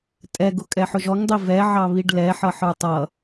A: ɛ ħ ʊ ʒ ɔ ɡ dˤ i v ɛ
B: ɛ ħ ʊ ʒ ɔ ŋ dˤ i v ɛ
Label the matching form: B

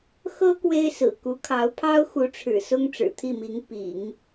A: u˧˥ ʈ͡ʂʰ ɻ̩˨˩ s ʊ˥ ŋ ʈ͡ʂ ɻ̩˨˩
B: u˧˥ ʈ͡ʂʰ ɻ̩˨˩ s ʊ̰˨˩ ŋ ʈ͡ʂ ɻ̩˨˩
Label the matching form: A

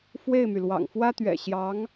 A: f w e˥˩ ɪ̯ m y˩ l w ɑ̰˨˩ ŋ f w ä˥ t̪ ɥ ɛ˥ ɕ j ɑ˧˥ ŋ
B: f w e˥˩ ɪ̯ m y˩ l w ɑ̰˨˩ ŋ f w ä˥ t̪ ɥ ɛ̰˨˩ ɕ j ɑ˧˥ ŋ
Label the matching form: B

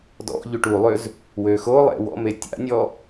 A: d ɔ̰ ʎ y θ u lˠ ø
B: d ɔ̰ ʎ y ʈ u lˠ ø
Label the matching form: B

